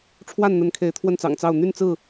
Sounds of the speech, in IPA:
ʈ͡ʂʰwa˥˨nn̪ə˨˦n kʰe˨˦ɪ̯t̪ʰwə˥˨nt͡sɑ̰˨˩ŋt͡sɑ˥˨ʊ̯ n̪y˥˨nt͡sɹ̩˥˨

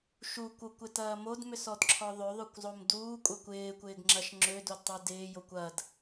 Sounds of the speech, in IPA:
ʃukʷ okʷɪtɐː modmʏsɔdǁʰɔ ðˤøðˤøkʷzˤom duːkʷʼɐkʷ ɪːkʷɪːɡŋ͡ǁɐʃ ŋ͡ǁødodtˤø dɪːjokʷ ɐd

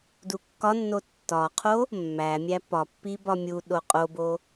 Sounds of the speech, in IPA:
dukːɒnːo tːɒqʰo | mːæmʲæ pɒpːi bɒmʲuɗo qʼobo

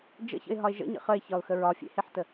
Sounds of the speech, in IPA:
d͡ʒə̰çə̰ɪ̯ɦɒɪ̯ ʒə̰ɲə̰ χəɪ̯çɒʊ̯xə ɹɒfʲḛheħtə

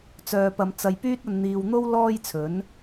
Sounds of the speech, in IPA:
t͡sœː˨pɐ˨mt͡sɐ˨j pyː˧t̚ɐ˨n n̪iː˨wn̪o˥w lɔː˥jt͡sʰɵ˨˥n

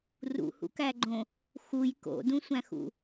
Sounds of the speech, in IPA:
rṵhṵkæɡ͡ǃõ | xuj ko̰dũsʷæ̃xṵ

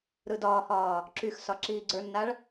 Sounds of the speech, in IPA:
ɾɯdɒːhɒː | ǁyx sɒǁiːɡ͡ǀə˞nːaɭ

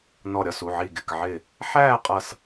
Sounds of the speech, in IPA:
nɔ˧˩ɾʲɒ˥˨su˩˧˩ʕi˧˩ ɡɪ˩˧˩kʕɪ˧˩ | ħæː˥˨qʼʌ˧˩s

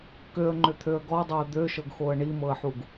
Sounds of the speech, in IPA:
køə̯ŋ͡ǃʏt̪ʰøə̯ ɡɔdˤɤə̯ d̪øʃɤɡxoə̯ ɳimɤə̯ħuɡ

